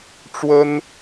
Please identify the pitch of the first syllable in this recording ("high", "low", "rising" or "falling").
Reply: high